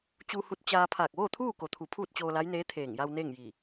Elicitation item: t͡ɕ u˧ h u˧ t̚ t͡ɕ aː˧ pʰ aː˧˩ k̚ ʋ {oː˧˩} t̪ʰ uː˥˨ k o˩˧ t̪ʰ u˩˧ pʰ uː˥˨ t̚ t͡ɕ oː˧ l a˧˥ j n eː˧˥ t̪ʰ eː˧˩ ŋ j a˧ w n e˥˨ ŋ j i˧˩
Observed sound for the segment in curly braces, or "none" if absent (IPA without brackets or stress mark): oː˥˨